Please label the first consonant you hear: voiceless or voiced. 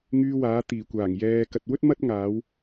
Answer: voiced